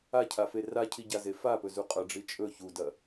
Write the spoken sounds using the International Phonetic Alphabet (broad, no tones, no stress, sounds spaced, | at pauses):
a cʰ a f e r a cʰ i ɟ a z e f a p ɵ z u qʼ ɐ ɖ͡ʐ i t͡ʃʼ ɵ ç u d ɐ